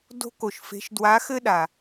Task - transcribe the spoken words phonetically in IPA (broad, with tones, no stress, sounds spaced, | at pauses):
d o̤˥ k o˩ ʃ f e̤˧˥ ʃ d w a˧˥ x ɘ˥ ɗ a˩